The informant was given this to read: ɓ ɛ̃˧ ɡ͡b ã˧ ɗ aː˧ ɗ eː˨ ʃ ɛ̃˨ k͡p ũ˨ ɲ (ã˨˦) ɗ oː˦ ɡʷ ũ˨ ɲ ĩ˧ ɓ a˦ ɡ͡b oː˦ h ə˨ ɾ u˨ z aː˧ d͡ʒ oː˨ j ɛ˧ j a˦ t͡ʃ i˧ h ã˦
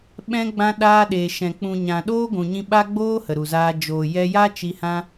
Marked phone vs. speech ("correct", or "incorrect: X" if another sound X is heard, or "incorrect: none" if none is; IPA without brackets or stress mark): incorrect: ã˨